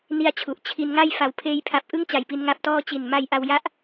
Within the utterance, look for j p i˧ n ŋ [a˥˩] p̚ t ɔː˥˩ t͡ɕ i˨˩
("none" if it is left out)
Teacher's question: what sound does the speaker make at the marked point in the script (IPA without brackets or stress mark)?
a˦˥